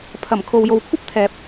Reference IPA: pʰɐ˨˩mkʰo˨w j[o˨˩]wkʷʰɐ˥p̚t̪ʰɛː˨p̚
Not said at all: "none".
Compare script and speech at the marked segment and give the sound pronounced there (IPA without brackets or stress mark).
o˨